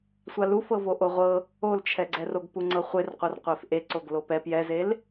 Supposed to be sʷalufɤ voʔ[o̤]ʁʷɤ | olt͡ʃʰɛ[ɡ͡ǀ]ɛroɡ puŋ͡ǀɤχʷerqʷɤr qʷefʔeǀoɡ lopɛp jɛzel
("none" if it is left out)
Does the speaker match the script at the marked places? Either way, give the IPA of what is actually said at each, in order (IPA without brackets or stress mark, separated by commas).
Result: o, ɡ͡ǀ